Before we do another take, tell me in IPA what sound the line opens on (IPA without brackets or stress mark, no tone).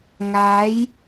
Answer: ŋ